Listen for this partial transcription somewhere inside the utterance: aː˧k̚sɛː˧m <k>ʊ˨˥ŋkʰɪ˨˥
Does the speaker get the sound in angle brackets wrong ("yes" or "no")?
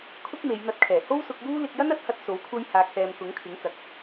no